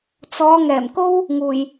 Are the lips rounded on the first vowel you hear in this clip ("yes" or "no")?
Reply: yes